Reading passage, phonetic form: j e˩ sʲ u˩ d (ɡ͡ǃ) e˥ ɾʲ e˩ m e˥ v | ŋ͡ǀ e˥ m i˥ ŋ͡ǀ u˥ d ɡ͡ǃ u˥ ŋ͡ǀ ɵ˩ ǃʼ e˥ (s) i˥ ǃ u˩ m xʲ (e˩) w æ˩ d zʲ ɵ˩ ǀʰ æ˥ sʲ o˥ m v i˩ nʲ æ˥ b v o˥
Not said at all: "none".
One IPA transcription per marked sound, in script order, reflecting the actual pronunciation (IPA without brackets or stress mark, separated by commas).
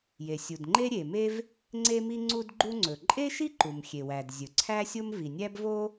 ŋ͡ǃ, ʃ, e˩